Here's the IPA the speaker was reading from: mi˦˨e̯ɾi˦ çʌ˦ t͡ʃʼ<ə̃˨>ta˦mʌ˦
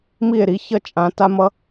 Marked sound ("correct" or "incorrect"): incorrect